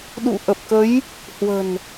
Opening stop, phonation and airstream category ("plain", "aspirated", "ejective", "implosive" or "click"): implosive